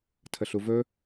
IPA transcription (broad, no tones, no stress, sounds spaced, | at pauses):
tʰ ə ɬ u v ɵ